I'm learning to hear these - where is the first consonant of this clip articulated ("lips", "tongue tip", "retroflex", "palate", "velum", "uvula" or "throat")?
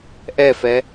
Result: throat